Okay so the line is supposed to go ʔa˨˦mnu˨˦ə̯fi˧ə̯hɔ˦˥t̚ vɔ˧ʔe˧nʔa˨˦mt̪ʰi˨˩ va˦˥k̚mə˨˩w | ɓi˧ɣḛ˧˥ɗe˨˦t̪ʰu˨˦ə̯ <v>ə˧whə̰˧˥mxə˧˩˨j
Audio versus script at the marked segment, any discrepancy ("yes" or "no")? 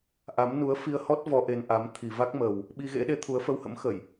yes